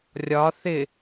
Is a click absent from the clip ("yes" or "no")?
yes